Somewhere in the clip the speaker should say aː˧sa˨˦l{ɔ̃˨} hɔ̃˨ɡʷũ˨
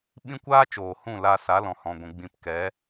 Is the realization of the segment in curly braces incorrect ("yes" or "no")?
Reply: no